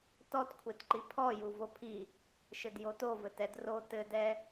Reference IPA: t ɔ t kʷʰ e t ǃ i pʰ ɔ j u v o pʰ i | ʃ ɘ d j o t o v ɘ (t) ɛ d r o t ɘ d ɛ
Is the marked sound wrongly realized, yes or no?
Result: no